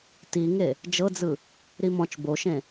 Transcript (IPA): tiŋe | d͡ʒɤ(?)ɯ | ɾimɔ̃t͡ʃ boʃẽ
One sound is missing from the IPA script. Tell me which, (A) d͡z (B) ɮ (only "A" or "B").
A